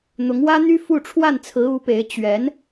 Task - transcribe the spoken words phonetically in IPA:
n̪ ʊ˧˥ ŋ w ä˥ n̪ y˥ f u˥˧ ʈ͡ʂʰ w a˥˩ n t͡sʰ ɹ̩˧˥ u˧˥ p e˧˥ ɪ̯ t͡ɕ ɥ ɛ˧˥ n

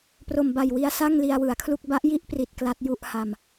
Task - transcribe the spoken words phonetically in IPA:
p r o˨˩ m b a˨˩ j w i˦˥ a̯ s a˥˩ ŋ l i˧ a̯ w ɯ˩˦ a̯ kʰ l u˥˩ k̚ b a˦˥ ʔ j i˥˩ ʔ p r i˨˩ t̚ k l a˦˥ t̚ j u˥˩ ʔ h a˧ m

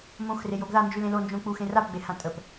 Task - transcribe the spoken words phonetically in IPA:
m õ x r e j o ɡ ð a n d͡ʒ ʉ l ẽ l o n d͡ʒ õ k͡p u x ẽ r a p ɡ͡b e h ã tʼ ə p

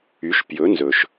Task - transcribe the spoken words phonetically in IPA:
y˩˥ ʃ p j ɵ˩˥ n z ɵ˩ ʃ

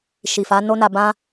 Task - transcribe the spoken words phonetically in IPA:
ʃ i˨ f a˨˦ n o˦ n a˧ b ã˦

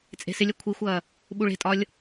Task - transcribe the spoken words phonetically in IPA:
t͡sʼ e̤ s ɪ lʲ ɐ kʷʰ i xʷ ɐː | ɓ u ɭ e̤ tʼ ɒ lʲ

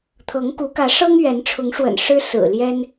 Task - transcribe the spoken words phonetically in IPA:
t̪ʰ ɤ˨˦ ŋ k u˨˦ k ä˨˦ ʂ ɤ˦ ŋ ɥ ɛ˨˦ n ʈ͡ʂʰ ʊ˨˦ ŋ ʂ w ə̰˨˩ n ʂ ɻ̩˦ s ɹ̩˨˩ l j ɛ˦ n

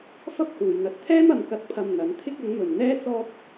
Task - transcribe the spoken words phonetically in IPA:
f ɐ˥ p̚ h uː˨ j n̪ ɐ˧ t̚ t̪ʰ ɛː˥ m ɐ˨ m k ɐ˧ t̚ pʰ ɐ˧ m n̪ ɐ˨˥ n t̪ʰ ɪ˥ k̚ ɐ˨˥ ŋ m ɵ˨ n n̪ ɛː˥ t͡s ɔː˥ t̚

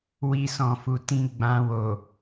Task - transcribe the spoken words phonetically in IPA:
w i˧ s ɔ̃˨ f u˨ t ĩ˧ ɡ͡b ã˧ w o˨

